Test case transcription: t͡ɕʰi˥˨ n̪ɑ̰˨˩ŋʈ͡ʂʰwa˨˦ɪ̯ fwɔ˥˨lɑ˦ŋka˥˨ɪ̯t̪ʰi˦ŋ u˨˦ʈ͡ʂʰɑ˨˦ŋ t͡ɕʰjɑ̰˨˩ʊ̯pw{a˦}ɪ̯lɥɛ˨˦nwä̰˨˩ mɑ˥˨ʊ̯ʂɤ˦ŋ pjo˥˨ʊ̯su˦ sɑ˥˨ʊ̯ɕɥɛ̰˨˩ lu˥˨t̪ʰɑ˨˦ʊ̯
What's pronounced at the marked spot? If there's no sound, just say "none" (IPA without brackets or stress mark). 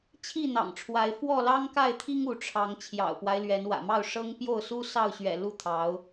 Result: a˦